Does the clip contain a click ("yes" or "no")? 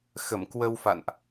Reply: no